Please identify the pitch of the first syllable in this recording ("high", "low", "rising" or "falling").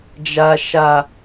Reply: high